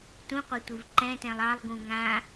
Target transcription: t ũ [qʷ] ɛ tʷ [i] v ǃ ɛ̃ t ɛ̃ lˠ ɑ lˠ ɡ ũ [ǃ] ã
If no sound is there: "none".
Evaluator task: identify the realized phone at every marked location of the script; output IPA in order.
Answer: qʷ, i, ŋ

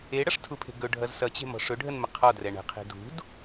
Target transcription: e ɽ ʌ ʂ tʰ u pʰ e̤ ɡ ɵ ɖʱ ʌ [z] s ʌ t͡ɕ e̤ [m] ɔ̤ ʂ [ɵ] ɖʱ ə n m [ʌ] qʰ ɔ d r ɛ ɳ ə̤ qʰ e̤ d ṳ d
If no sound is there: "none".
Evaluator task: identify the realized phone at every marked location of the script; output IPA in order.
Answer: z, m, ɵ, ə

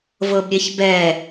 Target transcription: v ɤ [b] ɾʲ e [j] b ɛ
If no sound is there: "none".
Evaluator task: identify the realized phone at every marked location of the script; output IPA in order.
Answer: b, ç

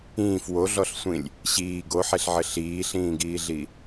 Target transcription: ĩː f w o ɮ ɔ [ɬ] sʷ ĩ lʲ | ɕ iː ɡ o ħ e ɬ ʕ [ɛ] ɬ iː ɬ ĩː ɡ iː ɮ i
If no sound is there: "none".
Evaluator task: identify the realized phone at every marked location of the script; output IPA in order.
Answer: ɬ, ɘ

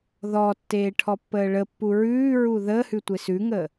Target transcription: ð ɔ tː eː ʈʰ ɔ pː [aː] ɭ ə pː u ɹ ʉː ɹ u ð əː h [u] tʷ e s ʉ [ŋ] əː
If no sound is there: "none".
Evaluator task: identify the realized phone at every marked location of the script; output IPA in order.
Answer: əː, ʉ, ŋ

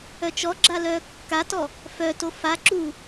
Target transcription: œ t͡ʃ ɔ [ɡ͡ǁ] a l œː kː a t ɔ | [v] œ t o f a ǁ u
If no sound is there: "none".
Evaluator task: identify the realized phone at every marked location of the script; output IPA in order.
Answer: ɡ͡ǁ, f

